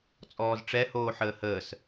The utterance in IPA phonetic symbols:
t͡sʼɔːzʈ͡ʂɛ hoːħəːhəːs

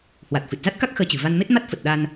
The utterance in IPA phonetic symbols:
hwa˨˩t̚fɨ˨˩t̚za˦˥t̚ka˦˥k̚ xəː˧t͡ɕɨ̤˨˩ va˧nme˦˥t̚ ma˦˥t̚fə˨˩t̚ɗa˧n

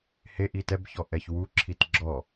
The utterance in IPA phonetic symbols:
heʔi tɛbçɔ ʔɛçwuǁʰit ɡ͡ǁɔ

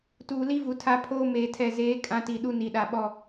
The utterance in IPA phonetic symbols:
tuː˨li˦vu˨ tʰa˦pʰoː˦ meː˨tʰɛ˨zeː˨˦ kʼã˦ti˨ ɗu˦ni˨ɗa˨ɓɔ˦˨

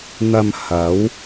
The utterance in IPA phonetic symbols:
n̪ɐ˨m hɐ˨˥w

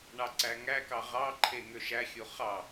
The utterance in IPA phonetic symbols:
ɳɑǀæŋækɑ ʁɑǃʰe ŋøʃæxʲo χɑ

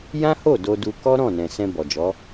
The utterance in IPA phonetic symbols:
jã˦ho˦˨ do˧du˧ kɔ˦ɾɔ̃˦˨nɛ̃˨ sɛ̃˧bɔ˨d͡ʒɔ˨˦

